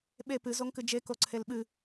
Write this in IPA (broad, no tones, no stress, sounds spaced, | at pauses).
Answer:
ɓ e p ɨ z o ŋ k ɨ d͡ʒ e k o ǀʰ e l ɓ ɨ